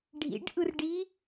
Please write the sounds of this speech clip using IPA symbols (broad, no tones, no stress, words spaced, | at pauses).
ɖʱḭɖʔɯrɖi